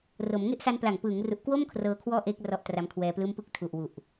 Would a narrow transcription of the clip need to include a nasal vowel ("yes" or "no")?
no